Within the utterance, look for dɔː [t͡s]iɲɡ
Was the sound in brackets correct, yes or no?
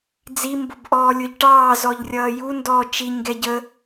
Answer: no